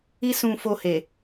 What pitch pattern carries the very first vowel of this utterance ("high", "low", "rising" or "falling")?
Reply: high